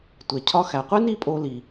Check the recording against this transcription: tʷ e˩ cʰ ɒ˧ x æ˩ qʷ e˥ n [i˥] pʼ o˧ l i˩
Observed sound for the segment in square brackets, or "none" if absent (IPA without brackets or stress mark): i˥